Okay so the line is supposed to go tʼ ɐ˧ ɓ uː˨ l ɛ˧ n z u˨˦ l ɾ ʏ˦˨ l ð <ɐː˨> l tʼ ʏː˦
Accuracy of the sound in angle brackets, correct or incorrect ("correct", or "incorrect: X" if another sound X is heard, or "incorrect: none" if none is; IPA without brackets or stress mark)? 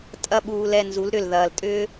correct